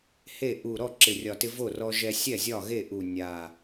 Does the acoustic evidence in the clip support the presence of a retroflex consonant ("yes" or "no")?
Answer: no